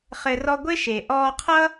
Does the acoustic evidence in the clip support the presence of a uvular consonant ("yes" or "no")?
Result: yes